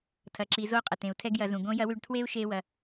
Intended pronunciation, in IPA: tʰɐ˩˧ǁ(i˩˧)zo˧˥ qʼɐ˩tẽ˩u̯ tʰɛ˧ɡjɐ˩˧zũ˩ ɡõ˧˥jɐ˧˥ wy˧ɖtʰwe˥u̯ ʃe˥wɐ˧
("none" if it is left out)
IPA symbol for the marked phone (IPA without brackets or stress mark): i˩˧